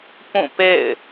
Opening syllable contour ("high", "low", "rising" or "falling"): falling